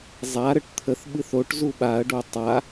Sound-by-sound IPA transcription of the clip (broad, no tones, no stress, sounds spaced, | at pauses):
zˤ a ɾ ə ʈ t̪ʰ ə θ ɓ ɨ θ o ʈ z u ɓ a ɐ̯ ɖ o tˤ a